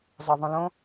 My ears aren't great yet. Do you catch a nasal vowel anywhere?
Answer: yes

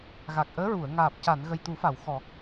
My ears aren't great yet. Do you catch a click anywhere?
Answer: no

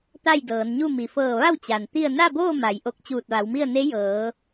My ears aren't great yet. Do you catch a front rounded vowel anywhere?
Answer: no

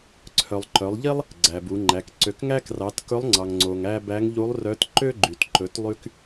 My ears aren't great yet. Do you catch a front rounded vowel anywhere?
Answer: yes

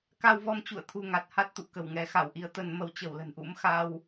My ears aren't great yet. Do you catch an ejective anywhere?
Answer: no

